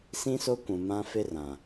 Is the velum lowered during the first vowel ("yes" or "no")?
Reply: yes